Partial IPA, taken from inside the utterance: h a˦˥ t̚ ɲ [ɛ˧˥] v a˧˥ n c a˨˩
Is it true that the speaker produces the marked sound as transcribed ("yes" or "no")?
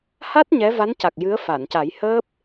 yes